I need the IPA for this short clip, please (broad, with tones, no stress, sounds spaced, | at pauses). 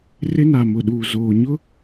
r ɪ˦ n a˨ m ʊ˨ ɗ uː˨ z oː˨ ɲ ʊ˦